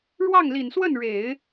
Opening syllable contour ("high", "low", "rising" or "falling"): falling